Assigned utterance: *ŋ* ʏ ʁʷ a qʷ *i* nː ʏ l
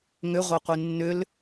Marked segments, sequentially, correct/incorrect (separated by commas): correct, correct